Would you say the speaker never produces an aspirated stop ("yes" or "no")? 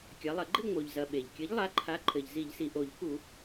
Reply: no